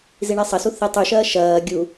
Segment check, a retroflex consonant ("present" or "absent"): present